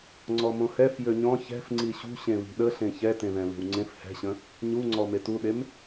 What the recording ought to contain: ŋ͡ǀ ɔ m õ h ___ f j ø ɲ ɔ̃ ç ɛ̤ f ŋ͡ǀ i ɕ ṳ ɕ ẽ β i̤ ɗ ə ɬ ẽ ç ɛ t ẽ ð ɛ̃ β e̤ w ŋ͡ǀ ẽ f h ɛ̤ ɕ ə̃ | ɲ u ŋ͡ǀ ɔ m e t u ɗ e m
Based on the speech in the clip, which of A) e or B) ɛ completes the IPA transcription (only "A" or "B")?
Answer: B